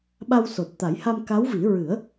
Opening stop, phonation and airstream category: implosive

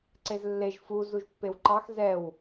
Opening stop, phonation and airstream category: click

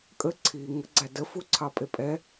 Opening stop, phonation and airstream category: ejective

